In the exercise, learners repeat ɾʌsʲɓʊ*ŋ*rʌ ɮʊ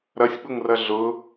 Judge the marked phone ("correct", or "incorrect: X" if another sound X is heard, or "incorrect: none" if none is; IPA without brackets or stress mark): correct